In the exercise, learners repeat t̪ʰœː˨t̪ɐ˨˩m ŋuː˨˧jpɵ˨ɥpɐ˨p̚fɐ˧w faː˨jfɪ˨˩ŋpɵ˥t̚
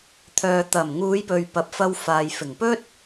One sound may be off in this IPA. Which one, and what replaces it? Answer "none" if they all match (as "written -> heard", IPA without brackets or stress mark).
none